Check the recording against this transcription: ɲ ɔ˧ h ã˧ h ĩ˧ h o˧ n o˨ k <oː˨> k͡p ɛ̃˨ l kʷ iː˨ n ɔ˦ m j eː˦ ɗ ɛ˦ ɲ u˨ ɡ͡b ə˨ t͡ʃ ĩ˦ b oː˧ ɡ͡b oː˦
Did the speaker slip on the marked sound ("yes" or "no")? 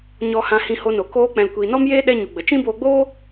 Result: yes